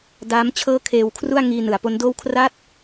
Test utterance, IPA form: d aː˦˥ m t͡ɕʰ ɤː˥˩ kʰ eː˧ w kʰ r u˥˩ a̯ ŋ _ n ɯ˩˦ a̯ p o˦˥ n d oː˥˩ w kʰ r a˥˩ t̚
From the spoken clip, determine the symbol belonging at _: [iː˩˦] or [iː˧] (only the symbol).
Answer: iː˧